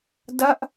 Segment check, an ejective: absent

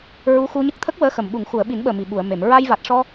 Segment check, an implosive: present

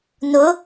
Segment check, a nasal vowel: absent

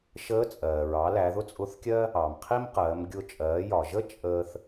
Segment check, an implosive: absent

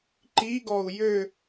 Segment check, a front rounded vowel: present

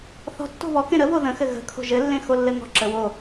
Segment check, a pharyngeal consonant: absent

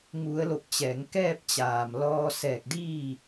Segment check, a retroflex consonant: absent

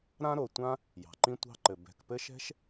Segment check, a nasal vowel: present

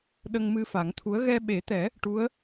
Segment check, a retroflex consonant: present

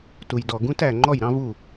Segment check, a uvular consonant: absent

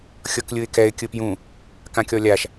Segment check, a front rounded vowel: absent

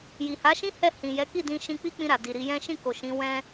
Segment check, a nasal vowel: present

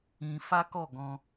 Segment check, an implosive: absent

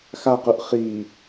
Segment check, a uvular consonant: present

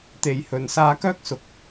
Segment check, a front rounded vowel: present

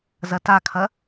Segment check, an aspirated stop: present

